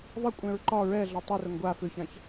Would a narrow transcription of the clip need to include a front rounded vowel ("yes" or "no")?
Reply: yes